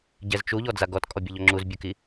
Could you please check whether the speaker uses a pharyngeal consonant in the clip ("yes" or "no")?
no